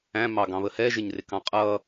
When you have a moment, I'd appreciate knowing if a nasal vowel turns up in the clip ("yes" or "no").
yes